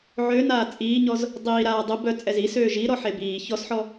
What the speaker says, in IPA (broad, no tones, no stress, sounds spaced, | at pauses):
ʕ ø n aː t͡sʼ iː ɲ ɔ z | dˤ iː ɾ aː dˤ ə b œ t͡sʼ ɛ z i s øː ʒ i ɾ ɔ ħ e b iː ç ɔ s ħ ɔ